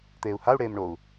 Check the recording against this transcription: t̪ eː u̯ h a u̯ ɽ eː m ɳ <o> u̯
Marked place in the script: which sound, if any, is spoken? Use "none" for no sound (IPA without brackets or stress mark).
o